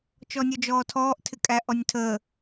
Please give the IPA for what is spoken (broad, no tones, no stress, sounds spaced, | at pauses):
t͡ʃ ɔ nʲ ɔ d͡ʒ ɔː tʰ ɔː ʔ tʰ ɪ kʼ æ ʔ ɔ nʲ tʰ əː